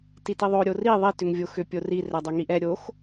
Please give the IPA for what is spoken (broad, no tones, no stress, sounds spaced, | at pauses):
t i t i ðˤ o ɾʲ o r i ðˤ i t ʏ ŋ vʲ o x ʏ pʲ o r i r ɛ dˤ œ ŋ i ʔ ɛ ɾʲ o x